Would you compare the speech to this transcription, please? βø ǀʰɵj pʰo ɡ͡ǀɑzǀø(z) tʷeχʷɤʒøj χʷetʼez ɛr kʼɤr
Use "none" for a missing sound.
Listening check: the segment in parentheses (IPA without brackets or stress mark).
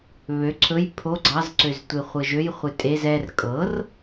z